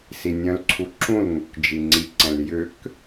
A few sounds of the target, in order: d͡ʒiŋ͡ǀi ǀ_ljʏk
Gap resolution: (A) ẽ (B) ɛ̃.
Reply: B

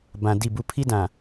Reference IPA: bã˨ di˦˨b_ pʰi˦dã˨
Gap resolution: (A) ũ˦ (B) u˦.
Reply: B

